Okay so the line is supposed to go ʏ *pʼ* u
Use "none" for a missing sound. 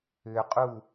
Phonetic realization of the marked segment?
qʼ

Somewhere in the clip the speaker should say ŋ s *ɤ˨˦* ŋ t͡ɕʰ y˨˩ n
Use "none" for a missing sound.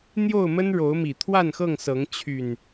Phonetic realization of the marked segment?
ɤ˨˦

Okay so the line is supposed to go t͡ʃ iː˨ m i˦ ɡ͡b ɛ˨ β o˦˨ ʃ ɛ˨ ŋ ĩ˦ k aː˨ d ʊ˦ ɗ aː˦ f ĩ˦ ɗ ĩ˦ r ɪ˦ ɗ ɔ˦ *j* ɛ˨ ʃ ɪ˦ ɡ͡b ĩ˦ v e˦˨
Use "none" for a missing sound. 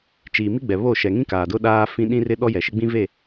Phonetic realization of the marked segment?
j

